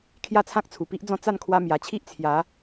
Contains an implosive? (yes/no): no